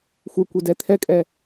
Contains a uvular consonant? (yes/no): no